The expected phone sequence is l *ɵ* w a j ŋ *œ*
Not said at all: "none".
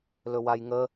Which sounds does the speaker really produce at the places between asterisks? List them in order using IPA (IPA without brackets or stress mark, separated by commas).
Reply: ɵ, ə